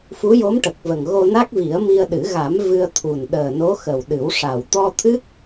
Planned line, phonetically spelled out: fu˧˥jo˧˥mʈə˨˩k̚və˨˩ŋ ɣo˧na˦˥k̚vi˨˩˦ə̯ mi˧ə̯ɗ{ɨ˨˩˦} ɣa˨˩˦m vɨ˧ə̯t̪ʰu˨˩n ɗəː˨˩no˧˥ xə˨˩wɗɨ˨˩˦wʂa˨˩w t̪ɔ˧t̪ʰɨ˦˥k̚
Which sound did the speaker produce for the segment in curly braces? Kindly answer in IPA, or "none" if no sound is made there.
ɨ˨˩˦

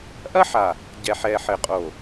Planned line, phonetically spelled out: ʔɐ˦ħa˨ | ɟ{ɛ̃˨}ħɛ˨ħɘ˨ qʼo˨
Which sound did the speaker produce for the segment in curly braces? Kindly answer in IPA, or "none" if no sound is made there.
ɛ˨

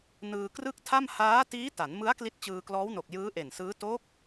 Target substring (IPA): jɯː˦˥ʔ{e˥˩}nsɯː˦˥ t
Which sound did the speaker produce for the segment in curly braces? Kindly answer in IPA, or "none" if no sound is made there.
e˨˩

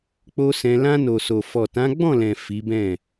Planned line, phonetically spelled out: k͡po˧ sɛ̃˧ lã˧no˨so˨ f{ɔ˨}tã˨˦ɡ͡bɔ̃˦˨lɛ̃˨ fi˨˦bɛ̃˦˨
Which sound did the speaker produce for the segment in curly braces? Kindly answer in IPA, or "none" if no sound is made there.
ɔ˨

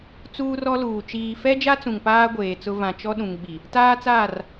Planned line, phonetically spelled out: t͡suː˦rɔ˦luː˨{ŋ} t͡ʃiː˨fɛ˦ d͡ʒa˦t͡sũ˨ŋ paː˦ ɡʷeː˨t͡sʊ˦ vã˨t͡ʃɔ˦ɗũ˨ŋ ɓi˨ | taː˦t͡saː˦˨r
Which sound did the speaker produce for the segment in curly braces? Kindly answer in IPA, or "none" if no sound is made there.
none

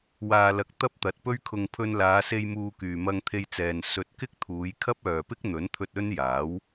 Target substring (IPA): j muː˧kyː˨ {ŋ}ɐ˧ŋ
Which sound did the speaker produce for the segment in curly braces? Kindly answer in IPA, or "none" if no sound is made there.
m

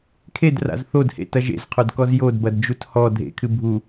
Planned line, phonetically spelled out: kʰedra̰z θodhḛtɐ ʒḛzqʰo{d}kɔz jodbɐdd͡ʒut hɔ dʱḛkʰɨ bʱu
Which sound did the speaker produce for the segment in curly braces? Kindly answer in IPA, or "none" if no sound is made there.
d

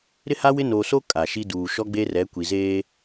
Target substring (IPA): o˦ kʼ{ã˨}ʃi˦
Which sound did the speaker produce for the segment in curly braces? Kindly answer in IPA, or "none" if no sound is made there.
a˨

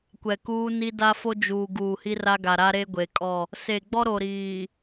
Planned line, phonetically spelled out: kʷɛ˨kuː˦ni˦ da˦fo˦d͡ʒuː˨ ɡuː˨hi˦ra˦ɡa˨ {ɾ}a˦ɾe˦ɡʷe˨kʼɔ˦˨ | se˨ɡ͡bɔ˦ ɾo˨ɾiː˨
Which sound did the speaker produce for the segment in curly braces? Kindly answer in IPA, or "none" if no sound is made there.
ɾ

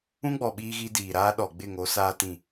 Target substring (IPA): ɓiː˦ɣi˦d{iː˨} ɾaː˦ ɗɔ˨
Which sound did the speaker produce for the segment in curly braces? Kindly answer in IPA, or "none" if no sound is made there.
iː˨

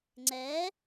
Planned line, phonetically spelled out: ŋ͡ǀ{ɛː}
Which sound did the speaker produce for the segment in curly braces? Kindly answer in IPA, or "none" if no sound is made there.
ɛː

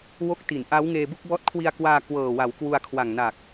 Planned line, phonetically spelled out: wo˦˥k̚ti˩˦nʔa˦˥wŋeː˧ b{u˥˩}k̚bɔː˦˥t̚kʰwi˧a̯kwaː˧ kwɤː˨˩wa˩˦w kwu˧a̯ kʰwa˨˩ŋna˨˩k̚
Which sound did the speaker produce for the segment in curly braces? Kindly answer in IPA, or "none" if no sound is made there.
u˥˩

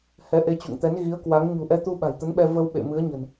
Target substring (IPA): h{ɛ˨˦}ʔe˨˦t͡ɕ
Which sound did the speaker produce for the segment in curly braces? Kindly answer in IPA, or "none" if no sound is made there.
ɛ˨˦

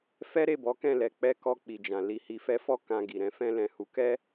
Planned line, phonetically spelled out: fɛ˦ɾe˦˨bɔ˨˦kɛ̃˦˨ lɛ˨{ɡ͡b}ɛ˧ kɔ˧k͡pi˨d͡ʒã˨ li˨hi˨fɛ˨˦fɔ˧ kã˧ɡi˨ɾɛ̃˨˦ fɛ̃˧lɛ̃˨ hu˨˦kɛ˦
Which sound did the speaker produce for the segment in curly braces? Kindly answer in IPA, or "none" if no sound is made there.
k͡p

